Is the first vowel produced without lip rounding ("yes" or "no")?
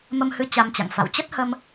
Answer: yes